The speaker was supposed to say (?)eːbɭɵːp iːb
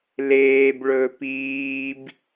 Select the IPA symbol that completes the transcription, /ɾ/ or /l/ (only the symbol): l